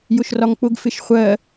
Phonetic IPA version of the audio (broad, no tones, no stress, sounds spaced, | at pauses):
j ʊ ʃ r ɒ ŋ k͡p ʊ ɡ f ɪ ʃ χʷ ɜ